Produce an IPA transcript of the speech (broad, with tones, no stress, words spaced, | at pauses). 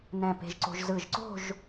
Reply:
nɛ̃˧˩ pe̤˧ʒǀo̤˧ʒ zɯ˧˩ʒǀo̤˥˧ʒ